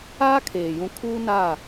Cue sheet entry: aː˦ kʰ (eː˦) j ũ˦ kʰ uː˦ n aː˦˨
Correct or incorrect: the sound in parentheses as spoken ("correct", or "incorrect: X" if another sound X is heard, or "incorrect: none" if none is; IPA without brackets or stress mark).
incorrect: eː˨